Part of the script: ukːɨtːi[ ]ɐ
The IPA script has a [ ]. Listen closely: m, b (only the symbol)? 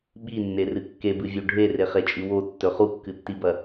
b